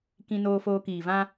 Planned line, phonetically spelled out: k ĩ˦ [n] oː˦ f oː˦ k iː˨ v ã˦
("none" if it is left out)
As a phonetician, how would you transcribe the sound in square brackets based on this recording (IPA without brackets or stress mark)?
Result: n